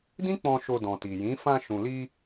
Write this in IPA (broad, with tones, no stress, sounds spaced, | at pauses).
d ĩ˦ k͡p ɔ̃˧ ʃ o˧ d ɔ̃˨ t i˨ j ĩ˨˦ f ã˧ ʃ ũ˨ l i˧